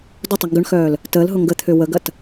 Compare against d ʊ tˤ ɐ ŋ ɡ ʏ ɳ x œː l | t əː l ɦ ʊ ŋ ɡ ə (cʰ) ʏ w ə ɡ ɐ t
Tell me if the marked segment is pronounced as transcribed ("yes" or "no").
no